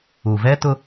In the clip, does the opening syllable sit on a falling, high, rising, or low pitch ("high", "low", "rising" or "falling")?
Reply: low